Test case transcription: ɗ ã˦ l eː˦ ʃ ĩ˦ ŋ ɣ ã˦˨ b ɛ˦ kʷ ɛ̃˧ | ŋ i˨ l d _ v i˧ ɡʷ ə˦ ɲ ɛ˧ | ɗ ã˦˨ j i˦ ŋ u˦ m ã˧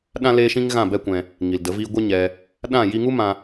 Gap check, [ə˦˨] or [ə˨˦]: ə˨˦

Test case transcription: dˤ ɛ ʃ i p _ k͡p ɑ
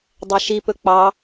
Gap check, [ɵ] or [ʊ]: ɵ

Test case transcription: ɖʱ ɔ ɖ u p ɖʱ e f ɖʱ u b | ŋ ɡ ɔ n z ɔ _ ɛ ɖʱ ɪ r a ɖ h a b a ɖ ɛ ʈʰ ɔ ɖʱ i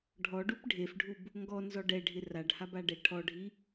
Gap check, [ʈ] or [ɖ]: ɖ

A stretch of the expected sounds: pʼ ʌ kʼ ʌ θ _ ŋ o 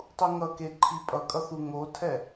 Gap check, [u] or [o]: u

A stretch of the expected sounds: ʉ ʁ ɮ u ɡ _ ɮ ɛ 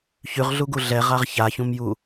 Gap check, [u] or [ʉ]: u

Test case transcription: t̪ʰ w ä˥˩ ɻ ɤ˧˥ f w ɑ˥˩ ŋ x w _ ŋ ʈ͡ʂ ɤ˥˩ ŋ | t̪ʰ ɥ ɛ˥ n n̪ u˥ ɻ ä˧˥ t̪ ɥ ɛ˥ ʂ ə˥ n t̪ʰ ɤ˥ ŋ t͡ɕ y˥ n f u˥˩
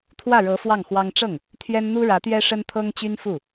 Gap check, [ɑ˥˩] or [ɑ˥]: ɑ˥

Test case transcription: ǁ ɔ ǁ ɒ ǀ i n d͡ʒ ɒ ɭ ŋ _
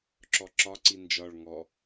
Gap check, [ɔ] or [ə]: ɔ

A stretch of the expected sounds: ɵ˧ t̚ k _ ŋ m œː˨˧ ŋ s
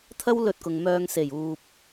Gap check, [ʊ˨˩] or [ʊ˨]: ʊ˨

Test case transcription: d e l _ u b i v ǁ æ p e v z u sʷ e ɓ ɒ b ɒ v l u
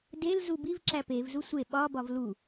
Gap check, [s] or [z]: z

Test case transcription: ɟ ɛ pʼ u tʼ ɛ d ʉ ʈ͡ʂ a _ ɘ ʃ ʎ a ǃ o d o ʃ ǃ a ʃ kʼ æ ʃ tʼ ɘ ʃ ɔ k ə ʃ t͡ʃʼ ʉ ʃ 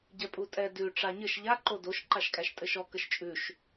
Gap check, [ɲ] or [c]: ɲ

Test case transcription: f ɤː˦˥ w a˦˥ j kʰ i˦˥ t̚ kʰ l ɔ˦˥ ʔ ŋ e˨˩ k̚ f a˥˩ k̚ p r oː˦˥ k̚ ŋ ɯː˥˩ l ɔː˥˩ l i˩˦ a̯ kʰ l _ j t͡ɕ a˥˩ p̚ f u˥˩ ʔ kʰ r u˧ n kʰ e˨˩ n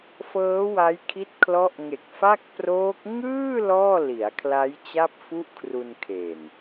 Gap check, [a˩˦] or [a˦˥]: a˦˥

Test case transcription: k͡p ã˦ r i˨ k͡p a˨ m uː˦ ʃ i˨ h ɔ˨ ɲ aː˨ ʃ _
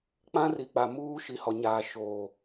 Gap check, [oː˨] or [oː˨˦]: oː˨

